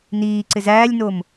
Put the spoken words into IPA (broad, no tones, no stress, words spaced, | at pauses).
niːǀɪ zæːlʲnom